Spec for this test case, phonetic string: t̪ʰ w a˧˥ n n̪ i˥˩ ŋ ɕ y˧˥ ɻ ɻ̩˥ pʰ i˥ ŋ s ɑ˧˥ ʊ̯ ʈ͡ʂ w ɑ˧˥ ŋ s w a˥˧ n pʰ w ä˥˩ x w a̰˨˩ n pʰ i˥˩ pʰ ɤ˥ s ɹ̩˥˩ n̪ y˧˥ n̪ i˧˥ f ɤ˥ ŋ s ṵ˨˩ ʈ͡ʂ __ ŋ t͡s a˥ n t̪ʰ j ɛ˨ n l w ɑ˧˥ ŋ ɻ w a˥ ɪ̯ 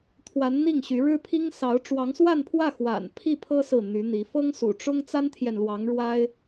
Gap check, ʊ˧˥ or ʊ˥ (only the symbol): ʊ˥